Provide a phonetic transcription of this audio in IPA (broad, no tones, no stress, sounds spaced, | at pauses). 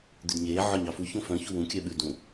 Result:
d̪ ʉ d ɲ eː ʕ ɔ ɲ ɑ f u ç õ f œ̃ ç u w ũ kʲ œ ɓ ʉ d ũ